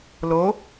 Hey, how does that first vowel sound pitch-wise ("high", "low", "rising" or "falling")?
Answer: rising